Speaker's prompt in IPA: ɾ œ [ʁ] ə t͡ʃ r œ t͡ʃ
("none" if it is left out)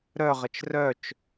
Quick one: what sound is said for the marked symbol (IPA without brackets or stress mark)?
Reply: ʁ